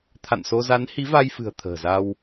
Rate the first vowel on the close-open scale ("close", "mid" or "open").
open